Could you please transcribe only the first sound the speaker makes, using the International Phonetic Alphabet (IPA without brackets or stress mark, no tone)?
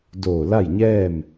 d